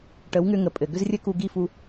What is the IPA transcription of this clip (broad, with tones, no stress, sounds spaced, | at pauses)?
ʈ ə˨˦ w ŋ ʏ˧ ŋ ə˨ pʼ ɘ˨ ɡ ʏ˦ z rʲ ɘ˦ k u˧ ɡ i˦˨ f u˧